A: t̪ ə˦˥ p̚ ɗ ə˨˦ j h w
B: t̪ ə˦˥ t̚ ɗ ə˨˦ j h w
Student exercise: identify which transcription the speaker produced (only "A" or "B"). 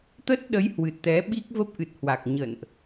B